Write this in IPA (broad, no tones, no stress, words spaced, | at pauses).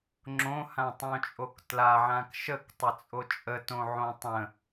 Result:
ŋ͡ǁõhãtˤõt͡ʃʼok tlaʕãk ʃəktˤə t͡sʼot͡ʃʼə tõʕõtˤə̃